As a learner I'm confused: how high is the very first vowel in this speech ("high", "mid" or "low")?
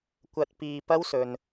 low